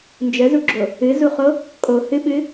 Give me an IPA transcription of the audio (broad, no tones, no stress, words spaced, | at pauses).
nd͡ʒəzuɡ͡ǁo | ɨzuχo | kʼo hɨɓɨ